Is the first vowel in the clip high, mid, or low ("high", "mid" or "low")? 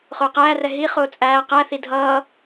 high